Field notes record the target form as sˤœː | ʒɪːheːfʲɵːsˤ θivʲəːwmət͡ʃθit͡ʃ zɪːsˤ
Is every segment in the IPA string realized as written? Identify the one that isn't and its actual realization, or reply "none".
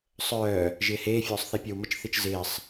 vʲ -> pʲ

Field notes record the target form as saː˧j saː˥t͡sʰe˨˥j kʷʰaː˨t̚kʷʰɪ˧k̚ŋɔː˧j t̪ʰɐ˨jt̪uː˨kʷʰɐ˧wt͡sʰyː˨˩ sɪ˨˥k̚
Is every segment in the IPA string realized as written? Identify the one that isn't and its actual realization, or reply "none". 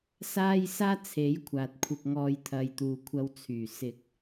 none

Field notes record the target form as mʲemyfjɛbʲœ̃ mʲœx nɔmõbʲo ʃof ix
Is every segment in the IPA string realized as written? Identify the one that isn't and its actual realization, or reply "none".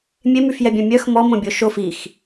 n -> m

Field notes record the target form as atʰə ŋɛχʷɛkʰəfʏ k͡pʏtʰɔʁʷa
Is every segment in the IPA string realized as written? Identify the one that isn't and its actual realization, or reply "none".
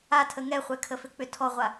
none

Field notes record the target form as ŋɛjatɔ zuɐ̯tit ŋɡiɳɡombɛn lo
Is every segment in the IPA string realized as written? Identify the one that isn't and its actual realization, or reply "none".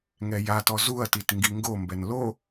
ɳ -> ŋ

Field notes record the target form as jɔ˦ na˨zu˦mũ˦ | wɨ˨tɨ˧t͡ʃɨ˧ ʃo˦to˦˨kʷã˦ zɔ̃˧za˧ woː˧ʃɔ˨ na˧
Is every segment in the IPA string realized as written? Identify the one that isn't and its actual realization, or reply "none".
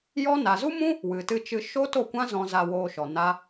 none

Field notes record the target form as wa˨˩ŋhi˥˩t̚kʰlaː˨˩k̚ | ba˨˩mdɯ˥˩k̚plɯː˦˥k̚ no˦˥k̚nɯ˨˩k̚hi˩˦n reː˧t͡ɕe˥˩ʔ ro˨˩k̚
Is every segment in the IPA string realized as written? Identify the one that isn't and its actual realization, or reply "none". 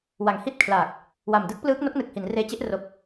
b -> w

